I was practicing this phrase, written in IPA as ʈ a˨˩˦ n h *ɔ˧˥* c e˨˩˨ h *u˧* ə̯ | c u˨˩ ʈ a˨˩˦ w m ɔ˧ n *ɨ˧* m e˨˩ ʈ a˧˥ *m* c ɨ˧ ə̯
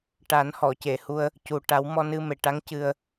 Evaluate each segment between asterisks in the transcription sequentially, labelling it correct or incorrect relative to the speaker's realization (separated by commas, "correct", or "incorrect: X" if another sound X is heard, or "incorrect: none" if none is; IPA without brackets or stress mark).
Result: incorrect: ɔ˨˩˨, correct, correct, incorrect: ŋ